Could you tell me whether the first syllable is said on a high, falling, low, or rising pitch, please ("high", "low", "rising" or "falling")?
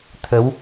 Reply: rising